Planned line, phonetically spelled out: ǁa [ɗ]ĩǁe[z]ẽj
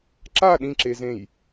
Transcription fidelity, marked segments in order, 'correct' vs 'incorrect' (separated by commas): correct, correct